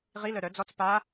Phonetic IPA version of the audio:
ʁ i l œ ɾ œ d͡z ɔ t͡s p a

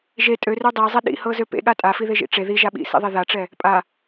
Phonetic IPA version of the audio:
ʒ e tʼ ø r ø dˤ ɛ zˤ ɛ ɗ ḭ h ɤ z ø p ḛ ɠ a tʼ a f i ð e ʒ ḭ ʈ͡ʂ e ð i ʒ a ɓ ḭ s ḭ ðˤ e ð a ʈ͡ʂ ɛ | pʼ a

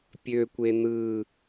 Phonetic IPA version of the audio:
pʲ ø kʷ e n̪ ɯ

